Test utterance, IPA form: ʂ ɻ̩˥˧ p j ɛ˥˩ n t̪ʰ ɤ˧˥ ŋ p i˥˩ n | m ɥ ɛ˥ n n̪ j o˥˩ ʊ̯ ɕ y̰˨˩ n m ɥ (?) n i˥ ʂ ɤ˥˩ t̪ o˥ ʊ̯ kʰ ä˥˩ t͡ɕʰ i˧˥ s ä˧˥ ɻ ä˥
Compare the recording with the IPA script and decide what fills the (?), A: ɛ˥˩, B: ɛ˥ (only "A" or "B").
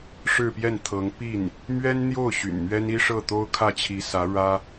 B